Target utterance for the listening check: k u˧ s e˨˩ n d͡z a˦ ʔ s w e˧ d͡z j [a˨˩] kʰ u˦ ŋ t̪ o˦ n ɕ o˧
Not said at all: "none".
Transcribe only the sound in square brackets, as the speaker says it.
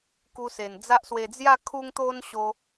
a˥˧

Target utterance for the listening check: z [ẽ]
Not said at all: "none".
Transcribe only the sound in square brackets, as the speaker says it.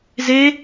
e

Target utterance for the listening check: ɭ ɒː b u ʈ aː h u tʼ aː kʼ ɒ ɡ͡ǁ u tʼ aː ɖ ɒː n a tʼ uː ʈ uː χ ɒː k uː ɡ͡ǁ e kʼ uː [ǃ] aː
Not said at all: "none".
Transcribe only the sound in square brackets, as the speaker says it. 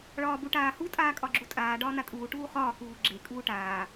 ʈ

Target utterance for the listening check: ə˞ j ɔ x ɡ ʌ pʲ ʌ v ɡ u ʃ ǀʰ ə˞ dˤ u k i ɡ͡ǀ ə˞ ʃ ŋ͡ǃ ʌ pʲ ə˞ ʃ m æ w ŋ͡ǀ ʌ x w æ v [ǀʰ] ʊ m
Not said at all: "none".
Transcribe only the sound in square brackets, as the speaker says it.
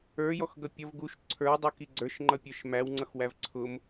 ǀʰ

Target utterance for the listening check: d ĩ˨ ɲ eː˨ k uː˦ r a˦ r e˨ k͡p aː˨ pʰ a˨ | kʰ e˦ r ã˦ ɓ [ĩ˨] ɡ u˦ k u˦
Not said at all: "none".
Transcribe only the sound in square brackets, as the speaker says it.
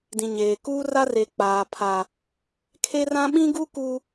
ĩ˦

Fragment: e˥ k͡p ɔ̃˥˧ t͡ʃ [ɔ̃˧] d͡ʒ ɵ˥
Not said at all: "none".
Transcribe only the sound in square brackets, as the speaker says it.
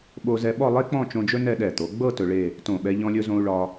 õ˧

